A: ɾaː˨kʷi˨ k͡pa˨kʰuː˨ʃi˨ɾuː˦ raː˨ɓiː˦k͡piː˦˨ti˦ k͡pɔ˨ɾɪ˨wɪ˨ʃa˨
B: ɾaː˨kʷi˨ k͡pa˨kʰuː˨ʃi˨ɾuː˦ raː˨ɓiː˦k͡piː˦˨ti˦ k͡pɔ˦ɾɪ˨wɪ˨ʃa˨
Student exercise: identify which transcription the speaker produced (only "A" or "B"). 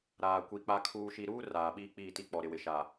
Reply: A